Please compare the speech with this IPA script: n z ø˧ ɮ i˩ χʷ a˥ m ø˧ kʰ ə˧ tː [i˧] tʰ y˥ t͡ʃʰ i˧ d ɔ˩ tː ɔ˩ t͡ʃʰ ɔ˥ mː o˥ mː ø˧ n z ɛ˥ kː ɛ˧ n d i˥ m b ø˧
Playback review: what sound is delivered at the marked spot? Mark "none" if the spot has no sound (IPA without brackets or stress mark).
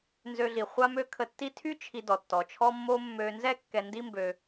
i˥